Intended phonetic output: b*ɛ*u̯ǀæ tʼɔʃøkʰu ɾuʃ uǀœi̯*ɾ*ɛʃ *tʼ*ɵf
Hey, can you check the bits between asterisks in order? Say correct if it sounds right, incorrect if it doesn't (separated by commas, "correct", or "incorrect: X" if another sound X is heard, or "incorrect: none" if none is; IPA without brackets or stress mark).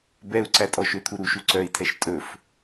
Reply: correct, incorrect: tʰ, correct